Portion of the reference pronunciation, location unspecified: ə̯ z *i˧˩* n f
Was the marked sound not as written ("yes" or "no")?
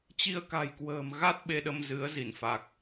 no